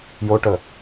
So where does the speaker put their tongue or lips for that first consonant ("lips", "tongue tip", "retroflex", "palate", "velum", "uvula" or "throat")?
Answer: palate